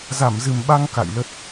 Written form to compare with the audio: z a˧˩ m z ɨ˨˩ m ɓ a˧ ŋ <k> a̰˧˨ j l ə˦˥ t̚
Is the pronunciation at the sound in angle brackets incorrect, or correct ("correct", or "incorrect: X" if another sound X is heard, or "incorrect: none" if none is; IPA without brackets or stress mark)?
correct